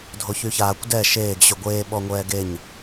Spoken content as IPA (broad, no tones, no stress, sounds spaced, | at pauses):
dʱ o ç y ç aː kʷ d ɛ ʃ eː ɡ ɕ y ɡʷ eː ɓ ɔ ŋʷ ɛː ɡ e ɲ